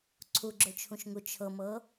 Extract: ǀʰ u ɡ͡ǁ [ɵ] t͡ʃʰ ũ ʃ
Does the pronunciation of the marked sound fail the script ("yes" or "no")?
no